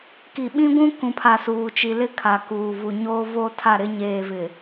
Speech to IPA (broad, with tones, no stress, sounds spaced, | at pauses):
k i˨ ɓ ĩ˦ ɡʷ ũ˦ k ũ˨ pʰ a˨ s uː˨ t͡ʃ i˨ l ɪ˦ kʰ a˨ k uː˨ v u˨ ɲ oː˦ v o˦ tʰ a˦˨ ɾ ɪ˦ ɲ eː˨ v ɪ˨